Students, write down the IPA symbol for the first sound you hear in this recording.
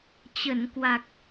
t͡ɕ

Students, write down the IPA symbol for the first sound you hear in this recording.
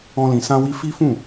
ɔ̃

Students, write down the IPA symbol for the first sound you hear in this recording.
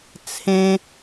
t͡sʰ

